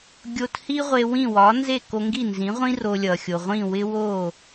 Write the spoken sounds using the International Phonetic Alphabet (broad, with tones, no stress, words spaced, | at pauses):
ɡʲo˧t hi˥ʁʷe˧wĩ˥˩ wɒ˩˥nze˥˩ ko˧ŋɡi˥˩nzĩ˩˥ʁʷĩ˥ ro˧lʲʌ˩ xʲo˩ʁʷĩ˥˩ wɪ˥ wo˥˩